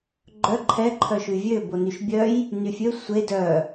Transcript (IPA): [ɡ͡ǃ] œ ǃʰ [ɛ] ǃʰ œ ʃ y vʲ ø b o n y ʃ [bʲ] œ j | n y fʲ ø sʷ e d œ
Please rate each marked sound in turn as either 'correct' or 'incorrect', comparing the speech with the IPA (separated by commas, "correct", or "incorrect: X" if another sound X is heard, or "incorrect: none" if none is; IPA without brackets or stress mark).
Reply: correct, correct, correct